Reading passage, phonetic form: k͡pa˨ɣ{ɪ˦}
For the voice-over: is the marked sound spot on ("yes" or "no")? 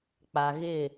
no